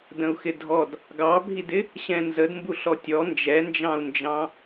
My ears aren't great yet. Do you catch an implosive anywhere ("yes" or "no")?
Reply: no